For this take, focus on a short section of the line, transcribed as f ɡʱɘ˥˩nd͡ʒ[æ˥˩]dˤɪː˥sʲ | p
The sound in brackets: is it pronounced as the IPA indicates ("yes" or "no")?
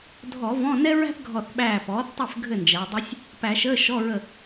no